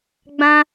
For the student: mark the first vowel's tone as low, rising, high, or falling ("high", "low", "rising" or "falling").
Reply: high